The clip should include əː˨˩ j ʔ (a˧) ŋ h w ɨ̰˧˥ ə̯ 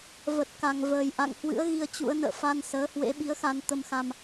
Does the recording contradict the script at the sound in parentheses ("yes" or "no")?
yes